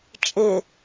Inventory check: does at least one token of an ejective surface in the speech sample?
yes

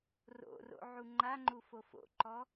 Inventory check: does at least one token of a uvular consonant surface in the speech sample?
no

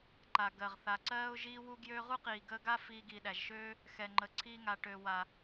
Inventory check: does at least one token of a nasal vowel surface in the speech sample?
no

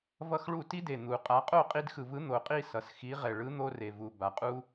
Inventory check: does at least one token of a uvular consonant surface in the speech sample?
yes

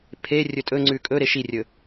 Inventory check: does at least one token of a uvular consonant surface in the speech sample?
no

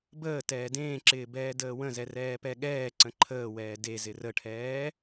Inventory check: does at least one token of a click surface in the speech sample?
yes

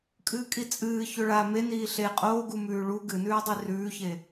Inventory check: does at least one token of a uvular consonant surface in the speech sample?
yes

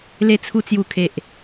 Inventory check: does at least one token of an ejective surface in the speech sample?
no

